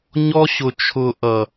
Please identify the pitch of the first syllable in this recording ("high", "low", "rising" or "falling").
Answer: high